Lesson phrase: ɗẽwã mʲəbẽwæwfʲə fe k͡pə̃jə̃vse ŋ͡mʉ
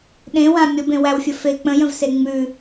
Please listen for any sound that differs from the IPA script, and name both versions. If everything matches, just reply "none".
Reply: none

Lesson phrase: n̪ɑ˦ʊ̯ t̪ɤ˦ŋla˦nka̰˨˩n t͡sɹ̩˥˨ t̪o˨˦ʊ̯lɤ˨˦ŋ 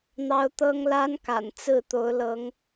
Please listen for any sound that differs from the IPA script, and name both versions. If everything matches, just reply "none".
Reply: none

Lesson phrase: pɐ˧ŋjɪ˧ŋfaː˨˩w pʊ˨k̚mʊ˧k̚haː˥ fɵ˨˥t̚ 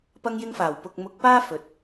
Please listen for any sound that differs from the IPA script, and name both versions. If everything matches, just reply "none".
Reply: h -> p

